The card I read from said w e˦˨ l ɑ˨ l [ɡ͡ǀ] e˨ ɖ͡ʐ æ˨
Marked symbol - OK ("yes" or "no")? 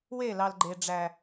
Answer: no